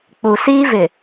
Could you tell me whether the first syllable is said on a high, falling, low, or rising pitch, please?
low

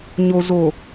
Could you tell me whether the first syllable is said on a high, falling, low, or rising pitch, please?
low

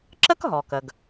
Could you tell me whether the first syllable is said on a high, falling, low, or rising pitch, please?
high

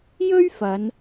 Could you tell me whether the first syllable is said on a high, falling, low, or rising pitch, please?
high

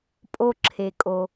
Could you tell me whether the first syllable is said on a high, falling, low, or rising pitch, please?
low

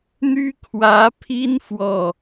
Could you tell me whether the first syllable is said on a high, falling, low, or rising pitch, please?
high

